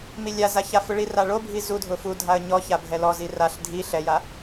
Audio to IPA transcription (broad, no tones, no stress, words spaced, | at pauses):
milʲaza çafʊɭira ɭobʱi zudʱʊ fudʱaə̯ ɲɔ çabʱɛlɔzi raɬ dʱi ɬɛja